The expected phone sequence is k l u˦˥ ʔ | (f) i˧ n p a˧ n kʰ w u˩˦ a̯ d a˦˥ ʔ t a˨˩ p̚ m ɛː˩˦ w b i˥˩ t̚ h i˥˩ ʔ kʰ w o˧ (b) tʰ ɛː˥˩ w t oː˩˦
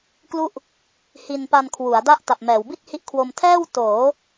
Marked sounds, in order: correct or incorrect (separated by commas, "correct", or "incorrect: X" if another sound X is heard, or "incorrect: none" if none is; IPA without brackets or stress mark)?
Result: incorrect: h, incorrect: m